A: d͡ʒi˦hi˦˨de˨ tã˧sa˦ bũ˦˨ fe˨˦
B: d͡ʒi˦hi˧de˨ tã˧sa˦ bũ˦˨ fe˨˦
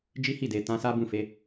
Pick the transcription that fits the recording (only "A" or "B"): A